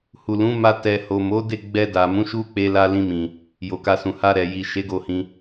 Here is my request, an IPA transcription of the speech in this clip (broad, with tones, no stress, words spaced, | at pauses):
hu˨lũ˨˦ma˧ tɛ˨ho˨mo˨˦de˦˨ ɡ͡bɛ˧da˨ mũ˨˦ʃu˦k͡pe˧la˧ lĩ˧mĩ˨ | jo˨ka˧sũ˨ ha˧ ɾɛ˨ ji˨ ʃe˨˦ɡo˧hĩ˧